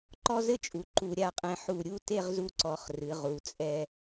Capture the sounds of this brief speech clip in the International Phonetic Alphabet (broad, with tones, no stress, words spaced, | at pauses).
ǃɔ˥zɘ˥t͡ʃʼu˩˧ ǃu˧ɾʲa˥˧qʼɛ̃˧ ħu˧˩ ɾʲu˥˧te˥˧ʁzu˧ǀɔ˩˧χ rɨ˩˧ʁu˩˧t͡sʼɛ˧